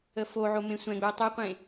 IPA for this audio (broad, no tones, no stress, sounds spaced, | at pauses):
ə f o ʕ o m ẽ sʷ ɛ̃ ɡ͡b ɵ ə̯ tˤ e qʷ ẽ